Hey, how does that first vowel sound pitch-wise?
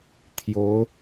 rising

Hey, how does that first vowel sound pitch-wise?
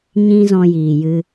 high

